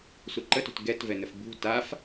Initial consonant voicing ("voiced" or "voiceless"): voiceless